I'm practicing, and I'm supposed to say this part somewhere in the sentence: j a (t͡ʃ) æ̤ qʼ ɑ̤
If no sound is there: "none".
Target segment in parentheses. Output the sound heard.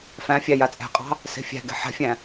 t͡sʼ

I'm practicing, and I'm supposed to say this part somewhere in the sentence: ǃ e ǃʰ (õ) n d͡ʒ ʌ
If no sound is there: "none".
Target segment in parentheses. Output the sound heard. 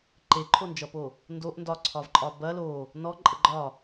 o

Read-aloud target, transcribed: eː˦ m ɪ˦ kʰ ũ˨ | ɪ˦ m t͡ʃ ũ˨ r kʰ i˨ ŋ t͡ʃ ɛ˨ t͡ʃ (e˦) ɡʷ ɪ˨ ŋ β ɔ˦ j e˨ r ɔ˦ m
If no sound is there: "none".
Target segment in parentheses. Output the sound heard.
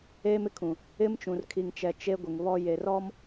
e˦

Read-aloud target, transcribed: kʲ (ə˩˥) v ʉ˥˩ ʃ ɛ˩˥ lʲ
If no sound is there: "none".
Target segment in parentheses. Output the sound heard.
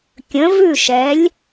ə̃˩˥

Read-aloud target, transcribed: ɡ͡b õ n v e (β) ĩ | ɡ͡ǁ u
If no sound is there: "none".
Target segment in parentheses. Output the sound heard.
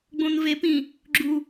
p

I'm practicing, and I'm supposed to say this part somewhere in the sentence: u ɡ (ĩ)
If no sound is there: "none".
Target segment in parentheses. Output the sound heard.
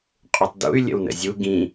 ĩ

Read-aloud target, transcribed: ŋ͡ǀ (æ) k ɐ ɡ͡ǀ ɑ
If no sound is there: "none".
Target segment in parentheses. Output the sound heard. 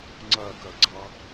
ɐ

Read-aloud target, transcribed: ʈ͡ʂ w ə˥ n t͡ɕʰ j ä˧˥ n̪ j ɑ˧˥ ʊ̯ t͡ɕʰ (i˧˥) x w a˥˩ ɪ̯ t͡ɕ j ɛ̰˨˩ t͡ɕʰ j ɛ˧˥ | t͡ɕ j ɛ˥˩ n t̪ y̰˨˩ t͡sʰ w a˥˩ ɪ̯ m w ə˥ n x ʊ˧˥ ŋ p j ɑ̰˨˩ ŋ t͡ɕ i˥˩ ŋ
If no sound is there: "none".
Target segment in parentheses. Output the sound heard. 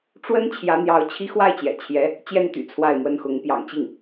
i˥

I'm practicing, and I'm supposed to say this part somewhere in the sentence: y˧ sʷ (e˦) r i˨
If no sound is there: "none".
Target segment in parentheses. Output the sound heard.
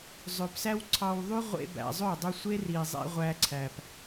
e˦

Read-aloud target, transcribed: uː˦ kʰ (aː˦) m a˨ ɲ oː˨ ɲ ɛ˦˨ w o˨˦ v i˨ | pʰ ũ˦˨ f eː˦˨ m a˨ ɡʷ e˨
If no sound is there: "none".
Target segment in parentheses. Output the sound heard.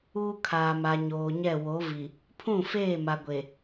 aː˨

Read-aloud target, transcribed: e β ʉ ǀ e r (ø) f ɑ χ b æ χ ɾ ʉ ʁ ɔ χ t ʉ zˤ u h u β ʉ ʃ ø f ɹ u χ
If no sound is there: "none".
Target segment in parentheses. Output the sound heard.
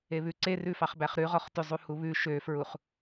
ʉ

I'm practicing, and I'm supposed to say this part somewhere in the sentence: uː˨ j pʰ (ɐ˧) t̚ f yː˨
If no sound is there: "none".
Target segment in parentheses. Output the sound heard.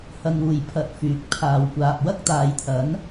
ɐ˧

